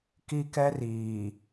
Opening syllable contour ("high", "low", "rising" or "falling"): high